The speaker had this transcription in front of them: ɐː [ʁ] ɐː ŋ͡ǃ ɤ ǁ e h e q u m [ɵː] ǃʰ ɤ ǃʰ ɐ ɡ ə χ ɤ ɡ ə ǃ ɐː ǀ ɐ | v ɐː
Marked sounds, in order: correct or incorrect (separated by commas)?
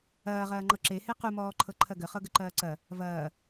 correct, incorrect